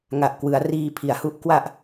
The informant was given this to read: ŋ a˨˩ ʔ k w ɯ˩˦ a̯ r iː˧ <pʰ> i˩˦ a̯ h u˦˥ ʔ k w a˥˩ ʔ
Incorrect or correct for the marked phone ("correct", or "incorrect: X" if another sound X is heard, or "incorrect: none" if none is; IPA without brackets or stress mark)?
correct